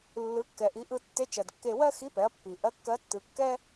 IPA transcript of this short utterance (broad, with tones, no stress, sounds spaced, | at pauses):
lː ɯ˩˧ kː ɛ˩ ʔ i˩˧ ʔ ɯ˧ tː e˧˥ t͡ʃ ɜ˩ d kː e˧ w ɜ˥ x i˧˥ p ɛ˩˧ ɐ̯ pː i˩ ʔ ɜ˧˥ kː ɜ˧˥ tː ɯ˩˧ kː ɛ˥